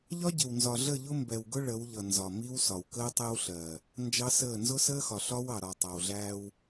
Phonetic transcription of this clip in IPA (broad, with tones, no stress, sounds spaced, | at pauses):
ʎ ɒ˦ ɟ ɪ˨ w n z ɒ˨ ɮ ə˦˨ ʎ ʊ˦ m b ɛ˨ w ɡ ʊ˦ ɭ ə˨˦ w ʎ ʌ˨ n z ɒ˨ m i˦ w s ɒ˨ w k əː˦ tˤ ɛ˦ w ɬ ɜ˨ | n d͡ʒ ɑ˦ s əː˦˨ n z ʊ˦ s əː˦ x ɒ˨ ɬ ɒ˦ w ɑ˨ ɾ ɒ˨ tˤ ɑ˨ w ɮ æː˦ w